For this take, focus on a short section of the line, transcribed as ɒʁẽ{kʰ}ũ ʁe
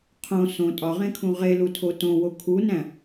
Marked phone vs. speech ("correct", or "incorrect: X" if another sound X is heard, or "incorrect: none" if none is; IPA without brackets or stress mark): correct